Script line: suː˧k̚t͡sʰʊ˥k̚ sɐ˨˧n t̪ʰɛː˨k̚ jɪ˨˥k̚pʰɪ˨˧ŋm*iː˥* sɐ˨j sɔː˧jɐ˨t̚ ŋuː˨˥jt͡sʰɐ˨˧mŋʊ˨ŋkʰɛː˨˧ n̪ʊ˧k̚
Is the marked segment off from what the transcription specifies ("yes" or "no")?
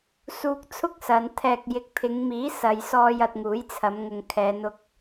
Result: yes